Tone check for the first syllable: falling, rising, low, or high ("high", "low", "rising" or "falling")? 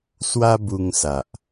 high